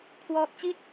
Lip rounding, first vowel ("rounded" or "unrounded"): rounded